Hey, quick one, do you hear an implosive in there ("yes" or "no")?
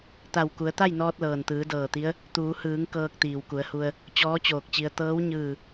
no